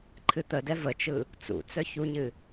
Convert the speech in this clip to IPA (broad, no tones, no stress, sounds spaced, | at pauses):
ǃʰ ɨ t̪ ə d ɛ v ə t͡ʃ ɯ | t͡s ṵ t͡s œ ç u ɲ ɨ